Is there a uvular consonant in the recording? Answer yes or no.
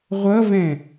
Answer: yes